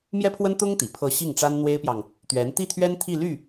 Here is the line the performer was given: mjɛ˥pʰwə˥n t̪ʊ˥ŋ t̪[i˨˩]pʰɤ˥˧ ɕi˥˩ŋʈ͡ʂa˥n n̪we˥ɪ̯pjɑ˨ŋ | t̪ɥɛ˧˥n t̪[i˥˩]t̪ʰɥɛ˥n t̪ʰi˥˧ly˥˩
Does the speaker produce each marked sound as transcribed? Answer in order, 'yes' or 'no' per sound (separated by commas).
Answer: yes, yes